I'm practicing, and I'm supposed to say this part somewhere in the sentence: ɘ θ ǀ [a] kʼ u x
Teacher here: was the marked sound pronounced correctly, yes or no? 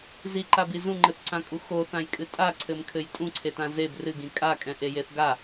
no